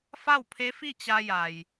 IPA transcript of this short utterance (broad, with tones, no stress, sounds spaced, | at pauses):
f a˥˨ w pʰ e˧˥ f i˥˨ t͡ɕ a˧ j a˩ j